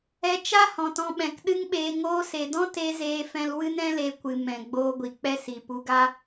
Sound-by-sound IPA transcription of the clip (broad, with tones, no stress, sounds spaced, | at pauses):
ɛ˧ t͡ʃ a˦ h ɔ̃˨ t ɔ̃˧ ɓ ɛ̃˨ k ɗ ɨ˦ ŋ ɓ eː˧ ŋ oː˧ s e˨ d ɔ̃˦ t e˧ z eː˧ f ɛ̃˧ l w ɨ˦ n ɛ̃˦ l e˧ kʷ ɨ˨ m ɛ̃˨ ɡ͡b oː˧ ɡʷ i˨ k͡p ɛ˦ s i˨ p u˧ ɡ a˦